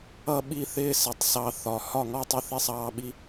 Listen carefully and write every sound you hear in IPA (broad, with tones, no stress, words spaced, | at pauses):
ʌ˥˨ɓi˥˨θɪː˦ sɪ˨˩˦tˤsɑ˦θɒ˨˩˦ hɒ˥˨ŋɔ˥˨tˤɪ˥˨ θi˦sˤɑː˦ɓi˦